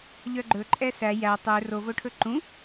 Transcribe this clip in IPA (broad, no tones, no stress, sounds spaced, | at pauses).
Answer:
ʎ œ ɡ͡ǃ ɵ ǃʼ ɛ s æ j æ tˤ ø r o v o ʈʰ ɵ ǃ ũ